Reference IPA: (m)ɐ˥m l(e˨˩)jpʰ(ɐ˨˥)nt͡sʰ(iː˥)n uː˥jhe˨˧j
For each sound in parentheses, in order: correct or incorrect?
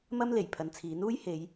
correct, correct, incorrect: ɐ˨˧, incorrect: iː˨˥

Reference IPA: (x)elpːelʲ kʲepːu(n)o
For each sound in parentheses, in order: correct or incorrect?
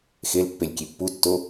correct, incorrect: tː

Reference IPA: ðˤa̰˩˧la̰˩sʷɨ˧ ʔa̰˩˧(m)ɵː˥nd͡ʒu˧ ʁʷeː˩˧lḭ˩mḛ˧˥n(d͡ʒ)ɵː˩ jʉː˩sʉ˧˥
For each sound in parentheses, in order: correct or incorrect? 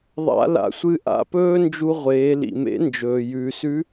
incorrect: p, correct

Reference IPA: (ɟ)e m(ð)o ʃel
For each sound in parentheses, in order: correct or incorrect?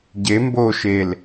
correct, incorrect: b

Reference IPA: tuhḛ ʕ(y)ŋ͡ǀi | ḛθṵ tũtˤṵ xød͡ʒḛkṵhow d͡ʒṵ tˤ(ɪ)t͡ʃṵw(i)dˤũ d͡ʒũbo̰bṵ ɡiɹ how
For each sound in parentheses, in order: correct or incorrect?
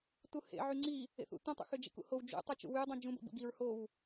correct, incorrect: y, incorrect: y

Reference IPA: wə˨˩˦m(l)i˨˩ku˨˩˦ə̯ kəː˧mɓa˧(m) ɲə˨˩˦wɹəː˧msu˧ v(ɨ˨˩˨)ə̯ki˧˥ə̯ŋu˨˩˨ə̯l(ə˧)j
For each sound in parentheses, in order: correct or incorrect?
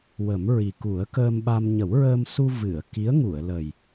incorrect: ɹ, correct, correct, incorrect: ə˨˩

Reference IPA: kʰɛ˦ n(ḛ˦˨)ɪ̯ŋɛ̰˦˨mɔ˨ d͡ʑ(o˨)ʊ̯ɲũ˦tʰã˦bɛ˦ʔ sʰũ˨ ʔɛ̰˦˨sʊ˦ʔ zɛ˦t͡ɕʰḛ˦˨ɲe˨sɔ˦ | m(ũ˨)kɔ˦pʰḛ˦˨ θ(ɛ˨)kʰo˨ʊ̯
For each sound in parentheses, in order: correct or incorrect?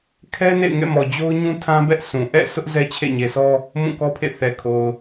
correct, incorrect: o˦, incorrect: ũ˦˨, correct

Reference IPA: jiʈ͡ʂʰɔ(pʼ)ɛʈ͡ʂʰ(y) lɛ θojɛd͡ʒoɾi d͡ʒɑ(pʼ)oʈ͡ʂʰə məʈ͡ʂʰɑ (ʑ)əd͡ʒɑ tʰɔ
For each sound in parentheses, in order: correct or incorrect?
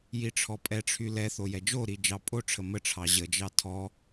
correct, correct, correct, correct

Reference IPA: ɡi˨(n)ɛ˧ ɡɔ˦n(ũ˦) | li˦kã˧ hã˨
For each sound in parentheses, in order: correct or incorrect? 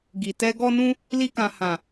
incorrect: t, correct

